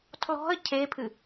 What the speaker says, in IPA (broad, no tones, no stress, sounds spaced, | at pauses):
tʰ l ɔ̤ ə̯ cʰ e pʰ ɨ